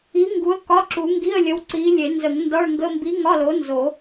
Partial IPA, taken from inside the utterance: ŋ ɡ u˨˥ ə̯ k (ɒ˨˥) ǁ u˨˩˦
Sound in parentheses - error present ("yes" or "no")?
yes